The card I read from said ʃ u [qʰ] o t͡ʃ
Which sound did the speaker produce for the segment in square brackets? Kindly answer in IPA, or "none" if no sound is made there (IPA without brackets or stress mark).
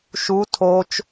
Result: tʰ